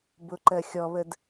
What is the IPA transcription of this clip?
b ʊ ǃ ɜ xʲ ɔ β ə d

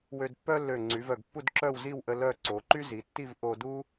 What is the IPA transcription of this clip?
w ø˧ d pː œ˥ lː ø˧˩ ŋ͡ǀ y˩˧ v œ˧˩ ɡ pː u˥˧ d ǁ œ˥˧ w z i˥˧ w ʔ ə˧ l œ˥˧ ǀ o˩˧ ǃ y˥ z i˩˧ tː i˥˧ v ʔ o˧ d u˥

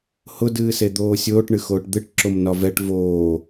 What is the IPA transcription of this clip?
h ʊ d ɨː s e d̪ oː sʲ oː ʈ ɳ ɨ x oː ʈ d̪ ɨ ʈ ǁ o m n ɒ v ɛ ʈ v oː

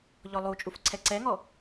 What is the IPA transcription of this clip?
ʎ ɔ lˠ u t͡ʃʼ u f ǀʰ ɛ ǀ ɛ ŋ ɔ

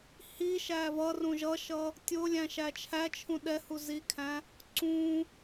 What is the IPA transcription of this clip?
h i ʃ æ v ʌ r ũ ʒ ʌ ʃ ʌ | tʲ ʊ lʲ æ̃ ʃ æ t͡ʃʰ æ t͡ʃʰ ũ ɗ ɛ h u z i kʰ æ̃ | ǀ ũ

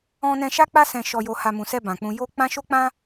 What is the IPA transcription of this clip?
ɔ̃˦ n ɛ̃˦ ʃ a˦ k͡p a˦ s ɛ̃˧ ʃ ɔ˧ j o˧ h a˧ m ũ˨ s ɛ˧ b ã˨ k͡p ũ˧ j o˧ k͡p ã˦ ʃ o˦ k͡p ã˦

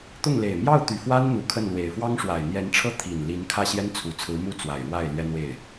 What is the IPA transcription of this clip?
t̪ ʊ˥˩ ŋ l e˨˩ ɪ̯ m j ɑ˥˩ ʊ̯ t̪ y˨˩ f w a˥ n n̪ u˧˥ kʰ ə˥˩ n l w e˨˩ ɪ̯ f w ɑ˥ ŋ ʂ w a˨˩ ɪ̯ n̪ j ɛ˧˥ n ʈ͡ʂʰ ɤ˥ t̪ʰ i˨˩ n l i˧˥ n kʰ ä˥˩ ɕ j ɛ˥ n t͡sʰ u˨˩ t͡sʰ ɹ̩˧˥ m u˥˩ t͡s w a˨˩ ɪ̯ ɻ w a˥˩ ɪ̯ l ɥ ɛ˥ n̪ w e˥˩ ɪ̯

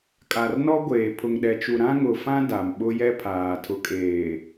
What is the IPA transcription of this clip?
kʼ a˨ r n ɔ˦ ɡʷ eː˨ pʰ ʊ˨ ŋ ɗ ɛ˨ t͡ʃ u˨ ɾ ã˦ ŋ ʊ˨ f ã˦ d a˨ m ɓ ʊ˦ j ɛ˦ pʰ aː˨ tʰ ʊ˨ kʼ eː˨

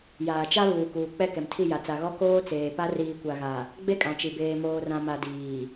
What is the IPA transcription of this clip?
j aː˨ t͡ʃ a˦ β uː˨ k uː˨ k͡p ɛ˦˨ k ɛ˨ m tʰ i˦˨ j a˨ t͡s a˨ ɣ ɔ˦ k oː˦ t͡s eː˨ p a˦ r iː˨ kʷ a˨ ɣ a˨ | ɡ͡b e˦ kʼ ã˨ t͡ʃ i˨ b eː˨ m oː˨ r ã˨ m a˨ d iː˨

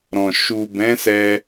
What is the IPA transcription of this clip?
ɾ ɔ̃˨ ʃ u˨ b ɛ̃˨˦ s ɛ˧

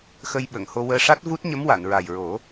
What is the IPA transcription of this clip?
x ə˧ j ɓ ə˨˩˨ ŋ h o˧ w əː˧ ʂ a˦˥ t̚ v u˦˥ t̚ ɲ ə˧˥ m w a˨˩˨ n ɹ a˨˩ j ɹ o˨˩˦

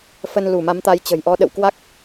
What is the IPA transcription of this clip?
f ə˧ n l u˧˩ m a˨˦ m t̪ a˨˦ j t͡ɕ ə̤˨˩ j ʔ ɔ˧ ɗ ə̰˧˨ w k w a˦˥ k̚

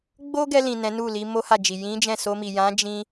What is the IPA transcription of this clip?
ɡ͡b o˦ ɡ ɛ˧ l ĩ˨ n ɛ̃˨˦ n u˦˨ l i˧ m o˦ h a˦˨ d͡ʒ i˨ j ĩ˨˦ d͡ʒ ɛ̃˦˨ s o˧ m i˨ j ã˨˦ d͡ʒ ĩ˧

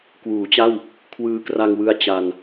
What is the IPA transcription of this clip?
k w uː˩˦ t͡ɕ a˥˩ w | kʰ w ɯː˧ k r a˧ ŋ w ɯ˧ a̯ t͡ɕ a˧ n

